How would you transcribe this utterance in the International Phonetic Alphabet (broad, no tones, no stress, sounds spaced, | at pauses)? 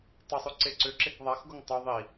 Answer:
tˤ ʊ sˤ ʉ ǀ e ǀ ʏ ǁ e k ðˤ a x ɡ o ŋ tˤ o ðˤ i